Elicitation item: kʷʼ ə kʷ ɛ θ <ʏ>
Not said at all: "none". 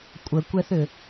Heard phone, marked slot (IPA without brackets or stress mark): ʏ